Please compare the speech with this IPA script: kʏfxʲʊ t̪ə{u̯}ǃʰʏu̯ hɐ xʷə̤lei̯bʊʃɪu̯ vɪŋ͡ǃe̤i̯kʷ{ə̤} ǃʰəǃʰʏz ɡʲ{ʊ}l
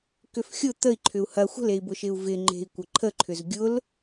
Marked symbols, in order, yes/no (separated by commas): no, no, yes